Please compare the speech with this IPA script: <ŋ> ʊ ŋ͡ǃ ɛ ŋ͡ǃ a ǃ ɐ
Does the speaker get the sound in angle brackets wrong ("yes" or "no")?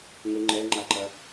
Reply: no